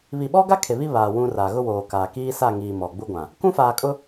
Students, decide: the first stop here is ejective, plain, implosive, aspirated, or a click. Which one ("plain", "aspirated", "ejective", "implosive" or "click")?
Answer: implosive